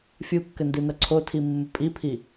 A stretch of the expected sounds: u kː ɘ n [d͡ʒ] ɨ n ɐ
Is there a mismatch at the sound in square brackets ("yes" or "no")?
yes